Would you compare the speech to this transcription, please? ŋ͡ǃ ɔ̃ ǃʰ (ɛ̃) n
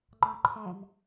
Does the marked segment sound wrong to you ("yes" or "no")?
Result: no